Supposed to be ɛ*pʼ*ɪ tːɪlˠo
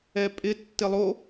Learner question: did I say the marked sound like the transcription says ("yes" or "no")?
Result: yes